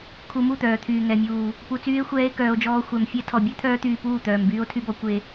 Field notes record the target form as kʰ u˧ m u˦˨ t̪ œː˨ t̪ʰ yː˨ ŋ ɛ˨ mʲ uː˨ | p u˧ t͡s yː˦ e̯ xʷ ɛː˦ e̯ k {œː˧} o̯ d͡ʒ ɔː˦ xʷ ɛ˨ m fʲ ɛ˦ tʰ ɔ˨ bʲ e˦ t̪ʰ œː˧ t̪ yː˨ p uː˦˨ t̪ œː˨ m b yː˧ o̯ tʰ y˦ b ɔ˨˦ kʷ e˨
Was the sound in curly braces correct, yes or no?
yes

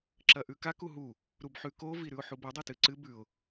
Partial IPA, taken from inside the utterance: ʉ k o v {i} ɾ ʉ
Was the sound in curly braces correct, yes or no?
yes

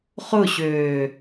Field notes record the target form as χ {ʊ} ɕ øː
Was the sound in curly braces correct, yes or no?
yes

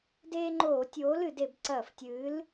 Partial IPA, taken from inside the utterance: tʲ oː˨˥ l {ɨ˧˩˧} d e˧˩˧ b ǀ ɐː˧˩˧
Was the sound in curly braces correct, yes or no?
yes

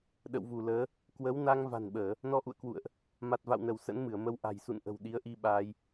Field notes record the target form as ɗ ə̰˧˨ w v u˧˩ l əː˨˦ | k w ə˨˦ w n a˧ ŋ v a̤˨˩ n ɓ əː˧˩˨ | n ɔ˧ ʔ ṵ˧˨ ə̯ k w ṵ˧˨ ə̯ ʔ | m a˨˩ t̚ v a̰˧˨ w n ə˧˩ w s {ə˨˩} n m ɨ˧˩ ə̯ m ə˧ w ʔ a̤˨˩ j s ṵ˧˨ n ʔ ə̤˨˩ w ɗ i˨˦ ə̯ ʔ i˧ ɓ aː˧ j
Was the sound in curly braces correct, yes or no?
no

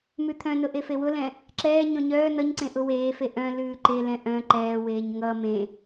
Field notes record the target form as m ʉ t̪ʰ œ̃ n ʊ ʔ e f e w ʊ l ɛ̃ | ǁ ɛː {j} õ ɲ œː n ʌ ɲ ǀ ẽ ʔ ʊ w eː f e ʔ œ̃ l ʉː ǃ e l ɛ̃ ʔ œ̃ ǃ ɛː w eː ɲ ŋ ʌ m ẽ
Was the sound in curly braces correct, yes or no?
no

